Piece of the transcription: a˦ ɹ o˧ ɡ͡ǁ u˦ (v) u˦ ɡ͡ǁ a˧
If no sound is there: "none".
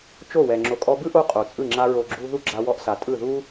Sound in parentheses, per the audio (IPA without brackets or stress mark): ð